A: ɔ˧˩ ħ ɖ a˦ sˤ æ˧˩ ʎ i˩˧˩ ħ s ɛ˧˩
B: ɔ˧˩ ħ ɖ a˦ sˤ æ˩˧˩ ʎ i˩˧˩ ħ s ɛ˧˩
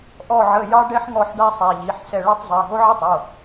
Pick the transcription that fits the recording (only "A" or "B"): B